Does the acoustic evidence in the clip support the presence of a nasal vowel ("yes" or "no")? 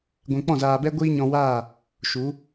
yes